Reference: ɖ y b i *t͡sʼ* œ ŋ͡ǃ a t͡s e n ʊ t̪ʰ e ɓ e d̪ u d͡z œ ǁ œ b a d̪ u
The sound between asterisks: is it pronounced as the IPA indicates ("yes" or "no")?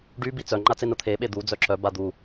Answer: no